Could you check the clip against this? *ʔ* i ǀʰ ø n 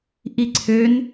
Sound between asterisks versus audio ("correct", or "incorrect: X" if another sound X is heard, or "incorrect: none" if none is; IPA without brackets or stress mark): correct